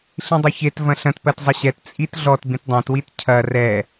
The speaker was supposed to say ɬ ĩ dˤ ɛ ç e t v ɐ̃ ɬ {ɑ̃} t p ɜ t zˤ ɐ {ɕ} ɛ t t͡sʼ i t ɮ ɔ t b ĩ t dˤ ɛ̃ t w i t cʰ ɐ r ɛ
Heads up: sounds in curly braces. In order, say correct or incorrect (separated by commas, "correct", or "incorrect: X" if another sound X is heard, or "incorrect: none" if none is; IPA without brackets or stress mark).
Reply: incorrect: ɐ̃, correct